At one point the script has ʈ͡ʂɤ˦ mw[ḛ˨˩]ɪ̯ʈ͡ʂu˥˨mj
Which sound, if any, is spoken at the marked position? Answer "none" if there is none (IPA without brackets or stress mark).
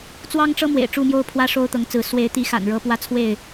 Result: ḛ˨˩